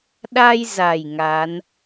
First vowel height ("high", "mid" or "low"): low